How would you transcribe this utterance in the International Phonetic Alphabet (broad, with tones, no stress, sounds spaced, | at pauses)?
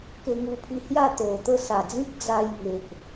k e˧ ŋ u˧ pʰ i˧ h j a˥˧ t̪ o˨˩ t̪ ə˥˧ s a˨˩ d͡z ĩ˦ k̚ d͡z a˧ j ŋ e˨ ʔ